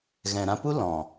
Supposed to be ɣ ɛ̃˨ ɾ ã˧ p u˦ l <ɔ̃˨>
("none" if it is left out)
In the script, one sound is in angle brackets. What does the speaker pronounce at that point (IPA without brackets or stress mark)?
ɔ̃˨